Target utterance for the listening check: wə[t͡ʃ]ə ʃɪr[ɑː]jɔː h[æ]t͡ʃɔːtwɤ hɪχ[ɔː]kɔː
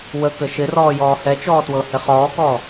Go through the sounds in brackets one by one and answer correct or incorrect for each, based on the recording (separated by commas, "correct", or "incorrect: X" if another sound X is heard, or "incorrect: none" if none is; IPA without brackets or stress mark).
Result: incorrect: k, incorrect: ɔː, incorrect: ɛ, correct